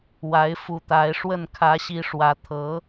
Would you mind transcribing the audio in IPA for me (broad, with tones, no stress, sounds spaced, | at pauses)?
w a˧˥ ɪ̯ f u˧˥ t̪ a˧˥ ɪ̯ ʂ w ə˥˩ n kʰ ä˧˥ ɕ i˧˥ ʂ w ä˧˥ t̪ʰ ɤ˧˥